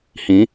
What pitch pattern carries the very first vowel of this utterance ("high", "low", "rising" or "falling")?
rising